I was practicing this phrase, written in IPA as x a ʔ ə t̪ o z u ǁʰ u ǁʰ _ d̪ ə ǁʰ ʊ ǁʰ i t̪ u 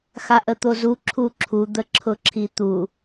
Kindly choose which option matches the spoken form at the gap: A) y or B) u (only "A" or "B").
B